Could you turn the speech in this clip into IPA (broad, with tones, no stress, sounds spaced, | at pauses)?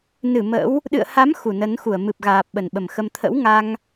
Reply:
n ɨ˧˩ m ə̰˧˥ w | ɗ ɨ̰˧˨ ə̯ h a˨˦ m x u˧˩ n ə˨˦ n x u˧˩ ə̯ m ɨ˨˩ p̚ ɣ aː˨˩ p̚ ɓ ə˨˩ n ɓ ə˨˩ m x ə˧ m t̪ʰ ə̰˧˥ w ŋ a˧ ŋ